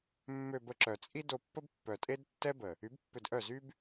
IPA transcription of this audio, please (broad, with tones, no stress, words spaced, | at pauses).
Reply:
mːø˧bə˧ǁœ˨ t͡sʼi˦do˧pːə˦bpːœ˨ tʼe˦d tːɛ˦bə˨ | y˨˦bpːø˧dʔœ˦˨zy˦b